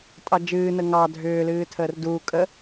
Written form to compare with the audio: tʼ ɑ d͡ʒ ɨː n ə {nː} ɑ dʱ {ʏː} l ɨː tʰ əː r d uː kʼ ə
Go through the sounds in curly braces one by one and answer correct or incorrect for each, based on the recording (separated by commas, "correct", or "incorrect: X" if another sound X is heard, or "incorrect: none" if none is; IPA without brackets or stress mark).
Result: incorrect: ŋ, correct